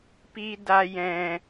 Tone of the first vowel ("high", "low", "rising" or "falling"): low